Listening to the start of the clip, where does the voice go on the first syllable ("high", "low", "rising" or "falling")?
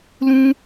high